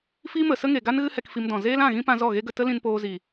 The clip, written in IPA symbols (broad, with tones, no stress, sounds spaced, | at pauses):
f i˦ m ə˨ s ə˦ ŋ e˨ ɡ a˦ n ɣ ɨ˦ h ɛ˧ k f i˧ m d ɔ̃˨ z eː˦ l ã˦˨ ɣ ĩ˦ p ã˧ z ɔ˦˨ ɣ e˦ ɡ ə˧ t ə˦ l ĩ˧ n p oː˧ z i˨